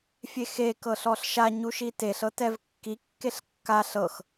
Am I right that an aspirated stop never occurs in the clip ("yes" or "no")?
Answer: yes